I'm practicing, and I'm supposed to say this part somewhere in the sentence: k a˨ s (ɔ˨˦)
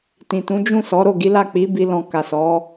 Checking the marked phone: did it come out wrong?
no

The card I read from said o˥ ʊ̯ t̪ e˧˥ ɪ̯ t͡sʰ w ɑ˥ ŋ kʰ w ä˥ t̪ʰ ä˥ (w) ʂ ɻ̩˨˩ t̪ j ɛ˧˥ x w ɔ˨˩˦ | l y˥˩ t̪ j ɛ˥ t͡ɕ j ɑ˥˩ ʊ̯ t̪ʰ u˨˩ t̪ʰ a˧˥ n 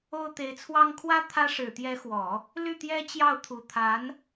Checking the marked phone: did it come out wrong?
yes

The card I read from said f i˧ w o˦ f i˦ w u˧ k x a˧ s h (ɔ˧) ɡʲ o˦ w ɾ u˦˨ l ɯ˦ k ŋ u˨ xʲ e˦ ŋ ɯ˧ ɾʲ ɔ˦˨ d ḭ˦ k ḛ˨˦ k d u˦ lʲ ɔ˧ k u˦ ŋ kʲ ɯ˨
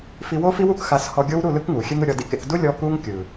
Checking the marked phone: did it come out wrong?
no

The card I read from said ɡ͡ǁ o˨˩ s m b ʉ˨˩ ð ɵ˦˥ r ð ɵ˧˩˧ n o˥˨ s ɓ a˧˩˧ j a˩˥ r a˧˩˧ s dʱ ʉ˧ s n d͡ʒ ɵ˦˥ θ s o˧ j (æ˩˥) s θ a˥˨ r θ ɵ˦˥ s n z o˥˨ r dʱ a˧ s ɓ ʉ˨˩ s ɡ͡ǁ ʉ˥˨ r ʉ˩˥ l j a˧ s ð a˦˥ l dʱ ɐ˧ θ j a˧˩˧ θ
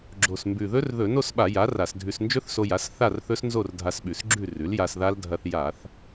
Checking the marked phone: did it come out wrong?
yes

